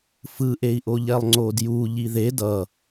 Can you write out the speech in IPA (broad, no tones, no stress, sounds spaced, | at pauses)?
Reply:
f ɯ ʔ e i̯ ʔ o ʎ ɛ lˠ ŋ͡ǀ o d j u ʎ i ð e d ʌ